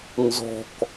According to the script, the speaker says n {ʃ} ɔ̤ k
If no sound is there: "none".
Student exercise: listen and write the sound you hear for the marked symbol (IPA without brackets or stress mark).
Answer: z